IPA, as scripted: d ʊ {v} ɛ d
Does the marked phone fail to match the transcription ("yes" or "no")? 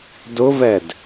no